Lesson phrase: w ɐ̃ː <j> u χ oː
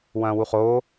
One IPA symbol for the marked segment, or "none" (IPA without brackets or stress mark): w